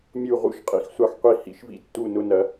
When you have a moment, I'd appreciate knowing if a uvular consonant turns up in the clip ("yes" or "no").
yes